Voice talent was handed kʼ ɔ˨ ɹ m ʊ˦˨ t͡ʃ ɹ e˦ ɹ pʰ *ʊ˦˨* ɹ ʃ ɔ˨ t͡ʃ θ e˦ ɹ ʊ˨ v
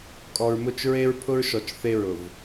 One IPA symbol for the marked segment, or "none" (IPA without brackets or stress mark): ʊ˦